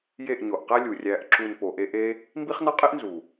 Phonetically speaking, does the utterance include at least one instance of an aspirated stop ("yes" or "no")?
no